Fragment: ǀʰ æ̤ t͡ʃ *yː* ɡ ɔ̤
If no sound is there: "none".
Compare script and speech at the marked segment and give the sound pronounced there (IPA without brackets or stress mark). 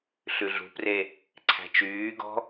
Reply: yː